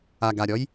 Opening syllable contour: low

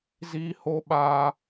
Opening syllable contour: high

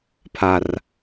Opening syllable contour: high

